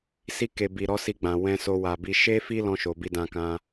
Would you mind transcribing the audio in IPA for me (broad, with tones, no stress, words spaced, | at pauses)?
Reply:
si˧ke˨ bi˨ ɾɔ˨˦si˧ɡ͡bã˨ wɛ̃˧so˧wa˨bi˧ ʃe˦fi˦lɔ̃˧ ʃo˨bi˧dã˧kã˧